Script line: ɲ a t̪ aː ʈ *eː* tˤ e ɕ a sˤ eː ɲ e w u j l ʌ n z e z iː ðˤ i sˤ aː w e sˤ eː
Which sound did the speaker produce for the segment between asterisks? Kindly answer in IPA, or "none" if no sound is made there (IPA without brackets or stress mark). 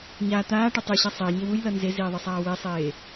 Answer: e